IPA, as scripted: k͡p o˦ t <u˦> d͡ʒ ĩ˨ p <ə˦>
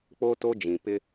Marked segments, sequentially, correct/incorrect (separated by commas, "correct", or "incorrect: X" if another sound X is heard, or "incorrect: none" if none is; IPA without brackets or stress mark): incorrect: o˦, incorrect: ɪ˦